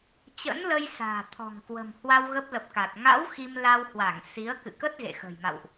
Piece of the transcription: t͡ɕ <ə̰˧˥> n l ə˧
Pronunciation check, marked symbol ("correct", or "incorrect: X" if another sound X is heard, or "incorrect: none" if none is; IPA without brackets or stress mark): correct